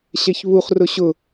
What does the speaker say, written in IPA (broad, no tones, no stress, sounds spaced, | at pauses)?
ɕ ɛ ç β u χ r ʊ ɕ ʊ